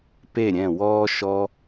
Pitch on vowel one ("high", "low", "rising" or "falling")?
falling